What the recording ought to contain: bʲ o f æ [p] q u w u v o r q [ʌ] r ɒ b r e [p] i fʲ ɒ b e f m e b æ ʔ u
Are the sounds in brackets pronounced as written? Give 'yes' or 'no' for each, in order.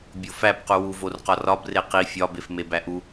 yes, no, no

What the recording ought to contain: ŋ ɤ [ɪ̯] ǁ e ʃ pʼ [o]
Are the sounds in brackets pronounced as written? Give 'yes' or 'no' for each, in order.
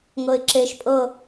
yes, no

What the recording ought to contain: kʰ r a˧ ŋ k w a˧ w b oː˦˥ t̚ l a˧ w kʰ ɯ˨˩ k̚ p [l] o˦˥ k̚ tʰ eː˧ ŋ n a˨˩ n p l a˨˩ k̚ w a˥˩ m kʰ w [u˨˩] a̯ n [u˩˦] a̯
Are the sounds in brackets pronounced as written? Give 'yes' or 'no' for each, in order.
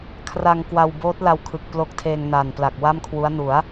yes, no, yes

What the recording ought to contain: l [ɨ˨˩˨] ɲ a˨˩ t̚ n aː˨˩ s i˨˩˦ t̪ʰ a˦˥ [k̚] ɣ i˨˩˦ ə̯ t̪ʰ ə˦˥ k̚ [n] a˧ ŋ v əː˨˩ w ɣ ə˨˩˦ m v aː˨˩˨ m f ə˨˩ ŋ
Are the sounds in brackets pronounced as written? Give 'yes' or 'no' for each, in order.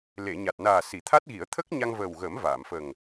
no, no, no

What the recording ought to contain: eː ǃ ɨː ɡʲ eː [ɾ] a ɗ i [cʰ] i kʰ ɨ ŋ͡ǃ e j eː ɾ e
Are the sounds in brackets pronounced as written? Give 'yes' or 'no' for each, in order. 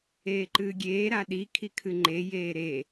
yes, no

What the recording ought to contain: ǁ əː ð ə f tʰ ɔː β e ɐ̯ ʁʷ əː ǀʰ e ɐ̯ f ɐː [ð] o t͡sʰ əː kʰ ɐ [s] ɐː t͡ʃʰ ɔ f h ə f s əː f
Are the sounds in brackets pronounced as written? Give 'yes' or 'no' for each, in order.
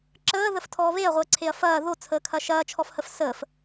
yes, no

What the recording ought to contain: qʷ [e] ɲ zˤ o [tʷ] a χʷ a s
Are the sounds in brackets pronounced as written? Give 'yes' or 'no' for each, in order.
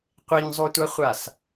yes, yes

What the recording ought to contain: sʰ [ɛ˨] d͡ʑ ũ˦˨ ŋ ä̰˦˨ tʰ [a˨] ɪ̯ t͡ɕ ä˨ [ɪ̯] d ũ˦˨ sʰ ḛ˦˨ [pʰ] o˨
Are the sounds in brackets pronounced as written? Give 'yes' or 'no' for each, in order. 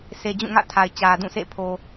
no, yes, no, yes

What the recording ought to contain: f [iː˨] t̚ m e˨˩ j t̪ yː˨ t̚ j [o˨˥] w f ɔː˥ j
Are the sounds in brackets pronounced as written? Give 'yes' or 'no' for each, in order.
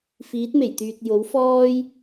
no, yes

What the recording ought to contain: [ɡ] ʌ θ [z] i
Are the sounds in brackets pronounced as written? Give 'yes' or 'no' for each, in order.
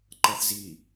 no, yes

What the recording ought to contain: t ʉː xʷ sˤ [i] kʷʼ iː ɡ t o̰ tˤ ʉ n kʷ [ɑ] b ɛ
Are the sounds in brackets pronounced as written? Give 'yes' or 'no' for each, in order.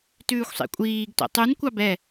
no, yes

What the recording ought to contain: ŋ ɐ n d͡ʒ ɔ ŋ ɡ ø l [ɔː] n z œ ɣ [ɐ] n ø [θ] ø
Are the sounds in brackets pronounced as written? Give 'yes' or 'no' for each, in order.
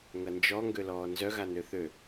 yes, no, yes

